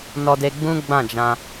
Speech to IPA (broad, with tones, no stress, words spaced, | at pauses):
nɔ˧de˧ɡ͡bũ˦ ɡ͡bã˦˨d͡ʒã˧